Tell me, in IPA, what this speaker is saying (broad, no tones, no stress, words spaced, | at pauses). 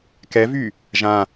kɛvy | ʒã